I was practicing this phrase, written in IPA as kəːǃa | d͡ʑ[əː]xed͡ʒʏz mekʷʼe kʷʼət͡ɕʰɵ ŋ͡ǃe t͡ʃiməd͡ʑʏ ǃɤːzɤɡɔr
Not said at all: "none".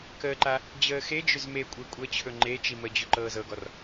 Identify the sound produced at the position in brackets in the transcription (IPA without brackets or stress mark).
əː